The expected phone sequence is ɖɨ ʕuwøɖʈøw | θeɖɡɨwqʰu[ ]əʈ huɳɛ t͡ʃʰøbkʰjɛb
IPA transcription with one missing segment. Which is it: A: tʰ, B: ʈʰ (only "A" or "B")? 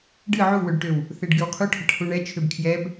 B